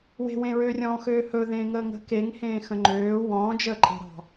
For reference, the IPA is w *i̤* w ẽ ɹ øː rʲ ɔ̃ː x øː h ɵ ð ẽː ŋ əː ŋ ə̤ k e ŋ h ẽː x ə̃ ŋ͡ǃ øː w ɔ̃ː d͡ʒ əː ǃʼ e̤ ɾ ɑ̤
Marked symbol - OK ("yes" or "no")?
no